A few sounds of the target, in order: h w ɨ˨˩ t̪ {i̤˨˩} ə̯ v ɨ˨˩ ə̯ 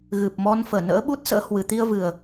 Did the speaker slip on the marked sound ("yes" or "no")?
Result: yes